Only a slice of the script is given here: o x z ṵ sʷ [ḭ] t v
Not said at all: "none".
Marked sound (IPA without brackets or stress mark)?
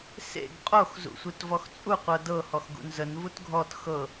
i